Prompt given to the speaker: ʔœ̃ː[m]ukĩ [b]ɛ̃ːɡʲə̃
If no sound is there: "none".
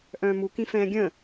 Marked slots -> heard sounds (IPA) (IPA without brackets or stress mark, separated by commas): m, f